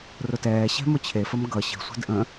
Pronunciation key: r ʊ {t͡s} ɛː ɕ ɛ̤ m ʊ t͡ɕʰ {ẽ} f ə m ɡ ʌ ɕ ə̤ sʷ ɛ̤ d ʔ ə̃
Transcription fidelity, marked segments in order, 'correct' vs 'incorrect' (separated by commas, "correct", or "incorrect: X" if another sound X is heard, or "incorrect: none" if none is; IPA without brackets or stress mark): incorrect: t, incorrect: e